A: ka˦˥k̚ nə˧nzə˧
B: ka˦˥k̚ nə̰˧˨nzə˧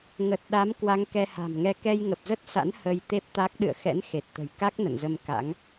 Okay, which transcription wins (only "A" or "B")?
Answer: B